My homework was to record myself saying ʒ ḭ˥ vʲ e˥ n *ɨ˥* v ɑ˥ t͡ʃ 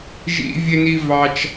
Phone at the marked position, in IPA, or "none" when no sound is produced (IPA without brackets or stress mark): i˥